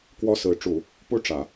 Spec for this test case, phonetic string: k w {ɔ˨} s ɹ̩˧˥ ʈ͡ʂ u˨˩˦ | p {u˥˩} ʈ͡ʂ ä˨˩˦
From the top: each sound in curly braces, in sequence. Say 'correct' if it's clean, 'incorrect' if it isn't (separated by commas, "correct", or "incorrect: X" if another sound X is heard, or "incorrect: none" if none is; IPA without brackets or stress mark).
incorrect: ɔ˥, incorrect: u˥